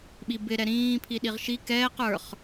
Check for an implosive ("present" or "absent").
present